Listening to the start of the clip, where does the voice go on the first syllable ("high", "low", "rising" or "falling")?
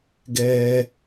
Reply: high